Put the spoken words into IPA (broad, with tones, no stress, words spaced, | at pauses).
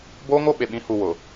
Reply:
boː˦ŋo˦ ɓe˨ɓĩ˨˦hu˨ wʊ˨